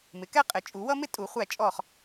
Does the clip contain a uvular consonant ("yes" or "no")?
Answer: yes